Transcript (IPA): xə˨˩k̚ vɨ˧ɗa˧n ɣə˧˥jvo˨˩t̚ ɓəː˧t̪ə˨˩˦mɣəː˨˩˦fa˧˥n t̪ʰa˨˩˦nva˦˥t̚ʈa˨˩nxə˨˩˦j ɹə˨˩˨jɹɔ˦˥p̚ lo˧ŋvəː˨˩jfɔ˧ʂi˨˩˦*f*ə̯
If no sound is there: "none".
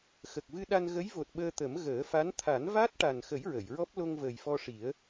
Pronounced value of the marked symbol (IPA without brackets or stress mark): none